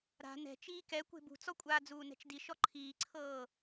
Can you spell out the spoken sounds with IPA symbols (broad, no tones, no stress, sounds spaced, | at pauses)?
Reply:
ɾ a̤ n ɛ̤ t͡ʃ iː k ɛ kʷ e̤ b ṳ t͡s ɔ kʷʼ aː d͡z uː n ɛ̤ t͡ʃ d i ʃ ɔ ǃʰ iː ǀʰ ɤː